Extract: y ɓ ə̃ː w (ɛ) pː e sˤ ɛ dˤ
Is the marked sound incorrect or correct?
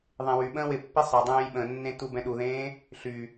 incorrect